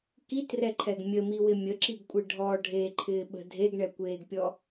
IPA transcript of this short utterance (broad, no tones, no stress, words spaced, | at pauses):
kitrɛǃʰɛɡ mʲəmiwɪ mʲəǁiɡkʷʼɪ ɖʱɔ ɖʱeǃʰɪːɓə̤ dʱeɡɳɛkʷeːɡpʲɔ